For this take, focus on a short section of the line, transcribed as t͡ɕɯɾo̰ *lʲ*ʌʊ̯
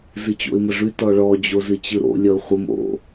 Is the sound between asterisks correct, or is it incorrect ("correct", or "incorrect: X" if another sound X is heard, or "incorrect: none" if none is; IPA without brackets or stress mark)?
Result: correct